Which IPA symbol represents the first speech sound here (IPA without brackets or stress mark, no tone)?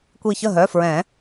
kʷ